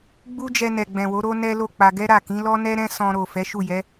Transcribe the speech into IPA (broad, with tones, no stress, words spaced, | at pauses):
ɡ͡bu˦d͡ʒɛ˧ nɛ˨ ɡ͡bɛ̃˨wo˨˦ ɾo˦ nɛ˦lo˦˨k͡pa˧ ɡɛ˦ɾa˦˨kĩ˨˦ lɔ˦nɛ˦ɾɛ̃˦ sɔ̃˧ɾo˨ fɛ˨˦ʃu˦˨jɛ˨˦